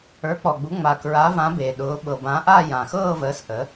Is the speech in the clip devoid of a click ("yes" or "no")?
yes